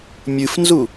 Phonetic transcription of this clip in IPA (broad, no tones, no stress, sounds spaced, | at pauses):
mʲ ɨ f n z u